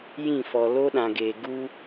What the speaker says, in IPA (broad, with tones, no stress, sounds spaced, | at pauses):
j ĩ˦˨ f ɔ˨ l o˦ ɗ ã˨ ɡ eː˨ ɡ u˦